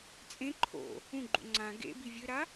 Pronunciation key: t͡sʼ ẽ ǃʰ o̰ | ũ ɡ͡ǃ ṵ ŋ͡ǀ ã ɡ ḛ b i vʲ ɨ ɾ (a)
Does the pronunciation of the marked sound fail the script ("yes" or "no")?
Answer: no